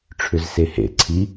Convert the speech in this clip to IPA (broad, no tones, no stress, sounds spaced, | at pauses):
ʈ͡ʂʰ ʏ z s e h ḛ ǀʰ i